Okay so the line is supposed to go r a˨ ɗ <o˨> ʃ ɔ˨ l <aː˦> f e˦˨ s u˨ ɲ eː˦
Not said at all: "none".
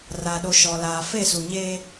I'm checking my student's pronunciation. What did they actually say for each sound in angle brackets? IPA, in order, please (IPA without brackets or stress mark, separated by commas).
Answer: o˨, aː˨